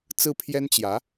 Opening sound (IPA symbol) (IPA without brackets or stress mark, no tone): t͡s